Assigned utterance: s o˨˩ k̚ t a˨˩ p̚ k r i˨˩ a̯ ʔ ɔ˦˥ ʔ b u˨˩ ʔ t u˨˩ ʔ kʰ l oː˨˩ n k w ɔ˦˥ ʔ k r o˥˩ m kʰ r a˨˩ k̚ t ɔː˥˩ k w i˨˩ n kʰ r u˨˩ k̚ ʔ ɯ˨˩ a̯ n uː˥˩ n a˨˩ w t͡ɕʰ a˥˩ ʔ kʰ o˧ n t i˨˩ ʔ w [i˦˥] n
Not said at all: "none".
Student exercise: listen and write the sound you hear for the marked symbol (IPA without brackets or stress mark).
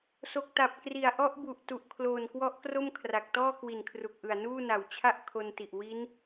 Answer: i˦˥